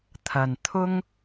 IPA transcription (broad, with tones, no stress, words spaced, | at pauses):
t̪ʰɐ˨˩n t̪ʰʊ˥ŋ